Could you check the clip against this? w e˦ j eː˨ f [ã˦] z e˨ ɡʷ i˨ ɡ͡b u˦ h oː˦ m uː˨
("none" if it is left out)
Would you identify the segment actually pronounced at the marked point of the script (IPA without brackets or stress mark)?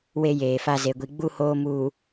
a˦